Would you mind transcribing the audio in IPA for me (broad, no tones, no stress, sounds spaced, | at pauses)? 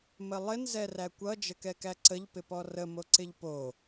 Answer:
m ə lˠ ɪ n z ɛ r æ kʷ ʌ d͡ʒ ə k ɛ k æ ǀ ə ʎ p ɪ p ɔ r ə m o ǀ ɪ ʎ p o